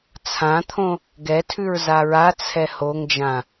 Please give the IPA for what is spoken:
t͡sʰ ã t̪ʰ õ | ɡ ɛ tʰ ʉ ɹ z a ɹ a t͡sʰ ɛ h o ŋ d͡ʒ ã

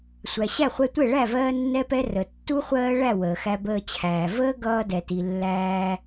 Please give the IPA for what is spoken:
sʷ æ˨ ɕ æ˦˨ χʷ ɛ˧ tʷ ɛ˦˨ ɭ æ˦˨ v ɜː˦ nː ɛ˦ p ɛ˦ r ə˨ tː u˦ χʷ ɜː˦ ɭ æ˦˨ w əː˨ x æ˧ b əː˧ t͡ɕʰ æː˨ v əː˦ ɡ ʌː˧ d ɛ˨ t i˨ lː æː˧

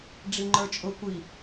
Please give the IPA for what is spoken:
ɖ͡ʐ i ŋ͡ǃ ə˞ t͡ʃʼ ʊ kʷ i

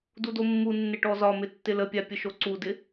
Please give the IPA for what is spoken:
d u d o mː u nː ɪ ʈ ɔ z ɒ m ɪ tː ɪ l ə pʲ a pʲ ə ʃ o ǀ u d ɪ

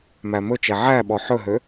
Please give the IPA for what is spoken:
m æ m ɵ t͡ʃ ɛ ʕ æ ɓ ɔ ħ ɵ ɦ ø

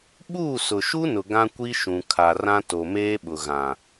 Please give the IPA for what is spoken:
ɓ uː˦˨ s ʊ˨ ʃ u˦ n ʊ˨ ɡ ã˦ kʷ i˦ ʃ ũ˨ kʰ a˨ r ã˦ t o˨ m eː˦ ɓ ʊ˨ ɣ ã˨

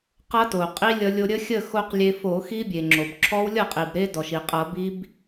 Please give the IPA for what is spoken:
q ʌ˦˥ t o˩ qʼ i˦˥ lʲ ʌ˧ lʲ o˧ ɾʲ ə˦˥ xʲ ə˥˨ x o˧ q lʲ e˧ f o˧˩˧ x i˦˥ bʲ e˩ ŋ͡ǁ o˩ b ǁʰ ɔ˦˥ w lʲ ʌ˥˨ qʼ i˩ b ɾ e˦˥ d ɔ˩ ʃ i˩ qʼ ʌ˧˩˧ b i˦˥ b

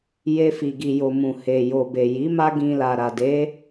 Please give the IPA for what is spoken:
j e˦ f i˧ ɡ i˧ j o˧ m ũ˨ h e˨ j o˨ b e˨ j i˨˦ m a˦ ɡ ĩ˧ l a˨ ɾ a˨ d e˨˦

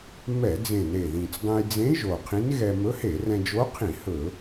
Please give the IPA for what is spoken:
m ɛ˧˩˧ d͡z ẽ˨˩ n e˨˩ ð ĩ˨˩ t͡s dˤ ẽ˧ j d͡z ẽ˧˥ ʒ o˨˩ qʰ ĩ˧˥ n ɣ ɛ˧ m ɵ˧˥ h e˧˩˧ r ɛ̃˧ d͡ʒ o˧˥ qʰ ĩ˧˩˧ h ɵ˧˩˧

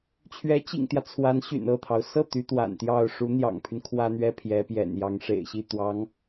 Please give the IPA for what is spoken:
t͡ɕʰ ɥ ɛ˧˥ t͡ɕ ḭ˨˩ ŋ t̪ j ä˦ t͡sʰ w a˧˥ n ɕ y̰˨˩ n ɤ˥˩ t̪ʰ ɑ˩ ʊ̯ s ɤ˥˩ t̪ y˧˥ t̪ w a̰˨˩ n t̪ j ɑ˥˩ ʊ̯ ʂ u˧˥ n̪ j ɑ̰˨˩ ŋ pʰ y˦ n kʰ w ä˥ n̪ ɥ ɛ˥ pʰ j ɛ˧˥ p j ɛ̰˨˩ n j ɑ˧˥ ŋ ʂ ḛ˨˩ ɪ̯ ɕ i˥˩ t̪ w ɑ˧˥ ŋ

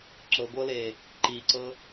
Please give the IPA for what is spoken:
ǁ ɤ ɡʷ ɤ l e | ǃ i ǀ ɤ

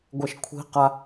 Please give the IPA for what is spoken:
ɡʷ ɛ ʃ kʷʰ i̤ q a

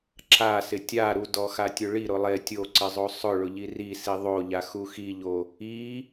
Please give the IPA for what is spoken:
ǁ a s ɪ tʲ a ɾ u d ɔ x a tʲ ʊ ɭ i ɾ ʊ lˠ e tʲ o ǀ ɪ zˤ o sˤ ʊ ɭ ʊ ʎ i r i s i ðˤ o ʎ a x u x i ʎ o | i

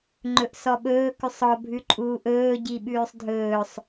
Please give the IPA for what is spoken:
ŋ͡ǃ ɵ ʔ s ɔ ɓ ɵː k ʉ sˤ ɔ bʱ ʉ ǃʼ uː ʔ ɵː ɟ i ɓ ʉː sˤ dʱ ɵː sˤ

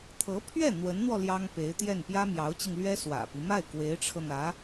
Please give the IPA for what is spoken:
t̪ʰ ɤ˧˥ pʰ ɥ ɛ˥˩ n̪ w ə˧˥ n n̪ w ɔ˧ l j ɑ˥ ŋ p e˧˥ ɪ̯ t̪ j ɛ˥˩ n p j ä˥ m j ɑ˧˥ ʊ̯ t͡ɕ i˧ ŋ l ɥ ɛ˥ s w ä̰˨˩ p i˦ m a˥˩ ɪ̯ k w e˧˥ ɪ̯ ʈ͡ʂʰ ɤ˧ n̪ ä˧˥

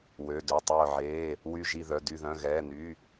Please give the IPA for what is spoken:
w ø˩˧˩ d ø˩˧˩ tˤ œː˧˩ ʕ eː˩˧˩ | w y˧˩ ʒ i˧˩ ð œ˩˧˩ d y˧˩ ð œ̃˩˧˩ ɣ ɛː˩˧˩ n y˩˧˩

